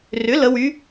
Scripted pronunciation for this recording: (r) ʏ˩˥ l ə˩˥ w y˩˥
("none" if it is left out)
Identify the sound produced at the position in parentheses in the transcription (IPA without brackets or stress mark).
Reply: r